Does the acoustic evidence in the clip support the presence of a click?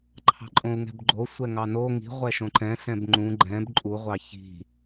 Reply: yes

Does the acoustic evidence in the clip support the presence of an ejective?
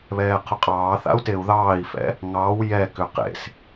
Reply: yes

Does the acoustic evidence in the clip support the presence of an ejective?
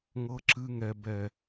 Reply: no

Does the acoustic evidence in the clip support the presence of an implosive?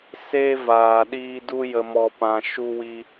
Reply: yes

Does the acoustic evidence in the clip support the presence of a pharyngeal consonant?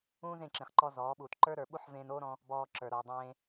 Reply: yes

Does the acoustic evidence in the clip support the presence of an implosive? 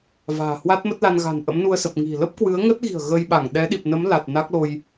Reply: yes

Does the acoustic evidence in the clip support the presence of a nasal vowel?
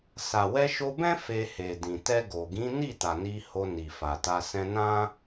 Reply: yes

